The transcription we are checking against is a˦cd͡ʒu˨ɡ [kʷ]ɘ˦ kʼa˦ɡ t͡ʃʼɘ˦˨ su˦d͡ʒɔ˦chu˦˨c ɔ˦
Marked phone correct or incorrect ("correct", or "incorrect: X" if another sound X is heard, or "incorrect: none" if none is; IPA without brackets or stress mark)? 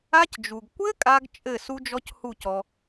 correct